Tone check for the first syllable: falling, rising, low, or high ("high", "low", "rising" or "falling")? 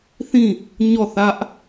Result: falling